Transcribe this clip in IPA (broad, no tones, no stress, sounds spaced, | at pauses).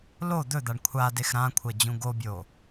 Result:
l o d̪ ɵ d̪ a ɳ kʷʰ a d e x ɾ ã kʷʰ ɐ d͡ʑ ũ ɡ o bʲ o